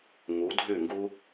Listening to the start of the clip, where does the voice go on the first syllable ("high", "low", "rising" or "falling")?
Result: rising